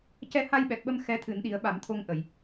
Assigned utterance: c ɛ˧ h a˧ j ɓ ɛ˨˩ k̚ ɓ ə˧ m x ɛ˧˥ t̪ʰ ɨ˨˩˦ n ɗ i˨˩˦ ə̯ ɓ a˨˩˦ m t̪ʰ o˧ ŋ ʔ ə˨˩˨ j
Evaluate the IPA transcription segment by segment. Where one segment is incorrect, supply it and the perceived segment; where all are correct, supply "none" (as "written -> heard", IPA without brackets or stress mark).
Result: none